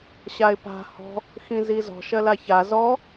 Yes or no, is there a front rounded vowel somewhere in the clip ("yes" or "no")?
no